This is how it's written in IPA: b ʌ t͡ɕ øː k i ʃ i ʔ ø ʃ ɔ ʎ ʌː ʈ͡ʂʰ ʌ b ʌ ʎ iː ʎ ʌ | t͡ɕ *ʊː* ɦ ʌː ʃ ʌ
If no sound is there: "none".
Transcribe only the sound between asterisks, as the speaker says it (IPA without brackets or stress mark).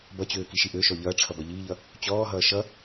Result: ɔː